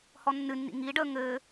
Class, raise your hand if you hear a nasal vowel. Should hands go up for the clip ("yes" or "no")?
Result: no